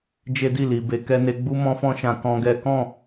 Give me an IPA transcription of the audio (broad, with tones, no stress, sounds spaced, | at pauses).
d͡ʒ e˦ d i˦˨ l i˨ b e˧ k ɛ˦ n e˦ ɡ͡b u˦ m ɔ̃˦ f ɔ̃˦ ʃ ã˧ k ɔ̃˦ ɡ ɛ˦ k ɔ̃˦˨